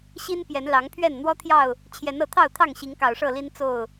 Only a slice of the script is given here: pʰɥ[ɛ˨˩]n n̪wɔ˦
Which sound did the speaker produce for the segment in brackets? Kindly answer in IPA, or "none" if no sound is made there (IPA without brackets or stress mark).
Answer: ɛ˥˨